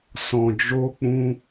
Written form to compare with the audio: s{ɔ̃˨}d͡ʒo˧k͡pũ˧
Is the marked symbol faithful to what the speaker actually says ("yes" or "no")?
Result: yes